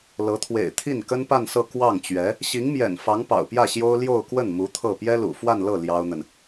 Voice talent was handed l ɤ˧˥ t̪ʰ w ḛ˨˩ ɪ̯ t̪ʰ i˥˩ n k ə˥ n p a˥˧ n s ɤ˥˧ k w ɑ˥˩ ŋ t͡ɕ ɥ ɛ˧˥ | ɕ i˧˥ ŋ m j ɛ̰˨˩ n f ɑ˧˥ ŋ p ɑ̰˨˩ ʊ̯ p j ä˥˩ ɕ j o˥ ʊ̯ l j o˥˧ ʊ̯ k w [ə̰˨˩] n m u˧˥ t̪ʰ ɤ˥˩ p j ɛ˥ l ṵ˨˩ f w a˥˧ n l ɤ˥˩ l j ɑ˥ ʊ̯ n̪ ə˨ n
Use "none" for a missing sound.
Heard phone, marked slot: ə˥˩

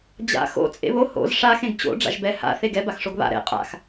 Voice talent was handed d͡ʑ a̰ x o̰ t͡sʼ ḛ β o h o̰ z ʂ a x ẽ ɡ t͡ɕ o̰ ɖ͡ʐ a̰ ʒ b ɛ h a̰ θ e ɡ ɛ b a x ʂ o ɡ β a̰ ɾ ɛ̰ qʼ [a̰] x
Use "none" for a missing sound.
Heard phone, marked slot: a̰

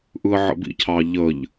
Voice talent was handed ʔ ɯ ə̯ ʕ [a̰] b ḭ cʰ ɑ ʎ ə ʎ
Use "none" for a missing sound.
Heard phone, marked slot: ə̰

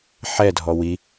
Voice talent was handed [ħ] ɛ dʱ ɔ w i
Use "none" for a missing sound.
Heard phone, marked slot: ħ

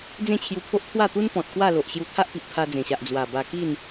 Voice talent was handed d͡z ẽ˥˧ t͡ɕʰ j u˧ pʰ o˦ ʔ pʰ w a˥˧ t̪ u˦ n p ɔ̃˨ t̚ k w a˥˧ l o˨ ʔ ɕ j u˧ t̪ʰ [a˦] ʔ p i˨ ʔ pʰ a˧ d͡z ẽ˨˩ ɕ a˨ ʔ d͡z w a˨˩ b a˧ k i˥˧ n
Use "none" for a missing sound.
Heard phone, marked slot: a˦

